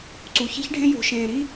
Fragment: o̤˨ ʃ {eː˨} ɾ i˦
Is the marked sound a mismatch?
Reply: yes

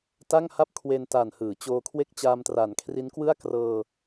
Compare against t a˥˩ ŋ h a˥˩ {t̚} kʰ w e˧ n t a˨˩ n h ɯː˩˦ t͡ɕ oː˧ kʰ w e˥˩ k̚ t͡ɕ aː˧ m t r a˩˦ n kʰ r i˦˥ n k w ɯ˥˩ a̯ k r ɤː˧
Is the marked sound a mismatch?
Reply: yes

